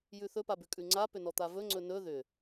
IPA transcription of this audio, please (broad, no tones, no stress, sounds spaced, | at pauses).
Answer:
j ʉ θ ɵ p a b ʉ kʼ ʉ ŋ͡ǀ a p ʏ n ɔ t̪ a v ɵ ŋ͡ǀ ɵ n ɵ ð ʏ